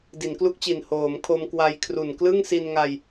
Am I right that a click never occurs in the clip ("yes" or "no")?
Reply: yes